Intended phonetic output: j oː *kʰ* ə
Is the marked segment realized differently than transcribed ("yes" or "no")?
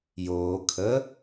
no